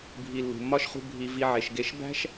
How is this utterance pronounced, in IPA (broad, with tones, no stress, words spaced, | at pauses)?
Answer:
bʱi˨lːṳ˩mːɒ˥ʃχṳ˦ bʱi˨ vi˨ʕe˩ʃɡe˨ʃbæ̤˥ʃ